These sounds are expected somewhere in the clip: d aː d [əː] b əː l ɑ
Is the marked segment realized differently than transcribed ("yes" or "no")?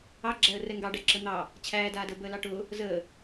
no